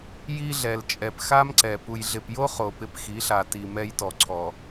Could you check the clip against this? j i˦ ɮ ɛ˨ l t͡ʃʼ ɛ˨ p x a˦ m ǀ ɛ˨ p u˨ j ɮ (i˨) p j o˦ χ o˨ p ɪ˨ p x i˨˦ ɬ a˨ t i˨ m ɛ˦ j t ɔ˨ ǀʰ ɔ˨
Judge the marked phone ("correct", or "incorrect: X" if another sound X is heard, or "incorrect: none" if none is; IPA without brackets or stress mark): incorrect: ɪ˨